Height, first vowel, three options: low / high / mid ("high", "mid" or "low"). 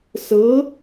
mid